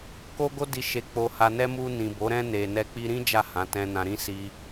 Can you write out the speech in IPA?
ko˦ɡo˦di˧ ʃe˧k͡po˧ha˧nɛ˦ mu˧ nĩ˨ bo˨˦ ɾɛ̃˦ ne˧ nɛ˧k͡pi˧ɾĩ˦ d͡ʒa˦˨hã˨˦ tɛ̃˧nã˧ɾĩ˦ si˧

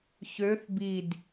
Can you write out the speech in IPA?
çøθ bid

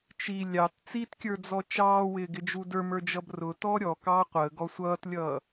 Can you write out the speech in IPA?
t͡ʃi lʲɑt t͡sitkʲə˞d͡zɔ t͡ʃɑːwɪːɡɪd͡ʒu də˞mə˞d͡ʒʌb rʊtɔ ɾʲɔkɑː qʷəːɡɔ sʷʌːtlʲʌː

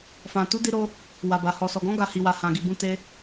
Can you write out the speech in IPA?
fã˨tu˨˦di˧ɾo˧ | wa˨ba˨ hɔ˨sɔ˨ɡɔ̃˨˦ ɡa˦˨hi˧wa˧ hã˨ɡi˨bũ˧ te˧

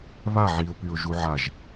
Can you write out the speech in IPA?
βa ʕiʊ̯pyʊ̯ ʒuʕaʒ

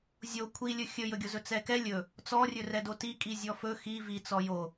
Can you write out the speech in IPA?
zʲo kʷʰilʲɵ xʲɵjɵɡʲozɵ t͡sɛkɛ lʲɵ | t͡sɔrʲɵ rɛdotikʼi zʲɔfɵ xi vi t͡sɔjo

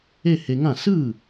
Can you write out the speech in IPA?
e˥˧he˧ŋã˥˩ sɯ˥˩

